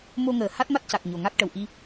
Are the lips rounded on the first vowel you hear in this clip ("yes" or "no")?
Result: yes